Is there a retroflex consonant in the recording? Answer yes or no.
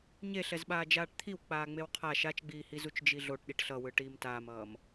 yes